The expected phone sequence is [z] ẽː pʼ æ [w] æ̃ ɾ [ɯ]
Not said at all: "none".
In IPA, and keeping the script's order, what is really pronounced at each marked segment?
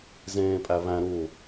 z, β, u

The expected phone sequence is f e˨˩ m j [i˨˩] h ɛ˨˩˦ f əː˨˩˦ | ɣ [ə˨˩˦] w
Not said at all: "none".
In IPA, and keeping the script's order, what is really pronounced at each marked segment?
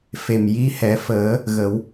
i˧˥, ə˨˩˦

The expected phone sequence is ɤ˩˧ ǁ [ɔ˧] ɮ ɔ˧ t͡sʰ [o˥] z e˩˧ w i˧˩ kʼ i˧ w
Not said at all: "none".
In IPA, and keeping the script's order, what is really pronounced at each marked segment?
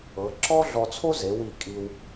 ɔ˥, o˥

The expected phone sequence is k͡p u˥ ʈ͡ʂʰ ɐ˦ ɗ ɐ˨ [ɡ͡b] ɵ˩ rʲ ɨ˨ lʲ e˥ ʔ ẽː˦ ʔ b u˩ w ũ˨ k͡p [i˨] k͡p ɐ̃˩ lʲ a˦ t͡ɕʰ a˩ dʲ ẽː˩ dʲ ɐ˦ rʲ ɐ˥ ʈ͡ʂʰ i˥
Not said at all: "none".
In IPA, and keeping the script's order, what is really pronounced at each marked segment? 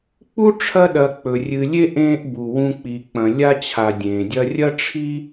k͡p, i˩

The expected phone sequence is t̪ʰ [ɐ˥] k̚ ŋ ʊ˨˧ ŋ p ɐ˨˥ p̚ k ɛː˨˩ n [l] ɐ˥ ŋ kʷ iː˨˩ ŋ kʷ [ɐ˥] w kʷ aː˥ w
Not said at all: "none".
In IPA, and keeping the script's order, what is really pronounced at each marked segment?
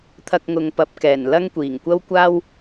ɐ˧, l, ɐ˥

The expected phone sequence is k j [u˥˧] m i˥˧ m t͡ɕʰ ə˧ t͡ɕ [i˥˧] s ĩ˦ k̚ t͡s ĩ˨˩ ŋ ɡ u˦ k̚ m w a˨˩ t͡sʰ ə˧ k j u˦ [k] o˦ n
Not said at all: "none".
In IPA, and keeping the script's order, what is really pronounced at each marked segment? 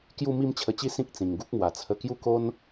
u˥˧, i˥˧, k

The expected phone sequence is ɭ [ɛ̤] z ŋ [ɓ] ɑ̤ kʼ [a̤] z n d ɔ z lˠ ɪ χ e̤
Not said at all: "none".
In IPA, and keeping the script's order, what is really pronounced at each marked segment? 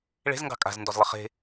e̤, ɡ, a̤

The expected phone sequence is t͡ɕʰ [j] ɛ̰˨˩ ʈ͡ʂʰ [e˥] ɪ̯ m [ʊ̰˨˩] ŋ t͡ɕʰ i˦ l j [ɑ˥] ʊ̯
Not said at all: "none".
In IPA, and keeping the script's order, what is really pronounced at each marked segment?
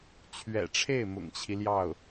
ɥ, e˥˩, ʊ̰˨˩, ɑ˥˩

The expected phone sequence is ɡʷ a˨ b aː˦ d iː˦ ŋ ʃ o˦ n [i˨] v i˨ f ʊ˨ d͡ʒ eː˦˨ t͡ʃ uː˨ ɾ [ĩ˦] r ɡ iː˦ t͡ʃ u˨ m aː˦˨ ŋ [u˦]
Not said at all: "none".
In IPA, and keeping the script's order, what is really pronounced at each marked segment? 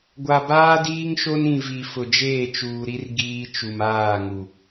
ĩ˨, i˦, u˨

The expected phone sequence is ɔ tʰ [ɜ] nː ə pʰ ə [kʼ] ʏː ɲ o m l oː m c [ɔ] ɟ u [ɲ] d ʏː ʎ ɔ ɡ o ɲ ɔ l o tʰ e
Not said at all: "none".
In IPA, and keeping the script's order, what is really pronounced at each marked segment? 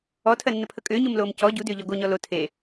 ɜ, kʼ, ɔ, none

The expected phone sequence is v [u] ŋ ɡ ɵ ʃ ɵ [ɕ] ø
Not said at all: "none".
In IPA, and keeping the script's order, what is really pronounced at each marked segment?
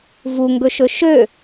u, ʃ

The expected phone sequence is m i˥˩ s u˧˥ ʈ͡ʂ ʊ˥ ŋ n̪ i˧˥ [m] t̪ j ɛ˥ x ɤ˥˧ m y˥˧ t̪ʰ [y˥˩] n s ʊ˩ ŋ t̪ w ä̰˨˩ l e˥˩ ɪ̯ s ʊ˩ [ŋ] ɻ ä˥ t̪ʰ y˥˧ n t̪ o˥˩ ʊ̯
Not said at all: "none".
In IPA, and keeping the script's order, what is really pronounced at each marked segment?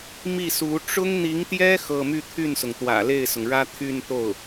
ŋ, y˥˩, ŋ

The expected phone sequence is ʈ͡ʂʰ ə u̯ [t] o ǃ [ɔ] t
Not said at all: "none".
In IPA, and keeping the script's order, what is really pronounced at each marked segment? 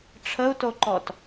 t, ɔ

